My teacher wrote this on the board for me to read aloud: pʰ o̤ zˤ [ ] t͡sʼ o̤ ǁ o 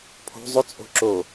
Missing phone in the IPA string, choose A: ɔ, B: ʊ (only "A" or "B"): B